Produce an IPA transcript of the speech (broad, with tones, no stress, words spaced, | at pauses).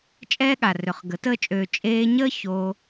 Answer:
t͡ʃʼɛː˦ɠa˨rø˨χ ɡə˨˦təː˦t͡ʃʼøː˧ t͡ʃʼeː˧ɲəː˦ ço˧